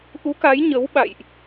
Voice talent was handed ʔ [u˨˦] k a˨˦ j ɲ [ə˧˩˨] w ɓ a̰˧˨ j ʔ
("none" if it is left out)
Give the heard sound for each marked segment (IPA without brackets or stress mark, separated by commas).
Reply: u˨˦, ə˨˦